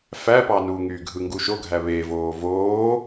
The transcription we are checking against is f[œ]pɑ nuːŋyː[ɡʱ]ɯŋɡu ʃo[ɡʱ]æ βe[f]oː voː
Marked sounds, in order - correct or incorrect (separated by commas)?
incorrect, correct, correct, incorrect